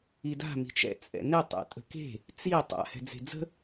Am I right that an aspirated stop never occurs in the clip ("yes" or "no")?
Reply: yes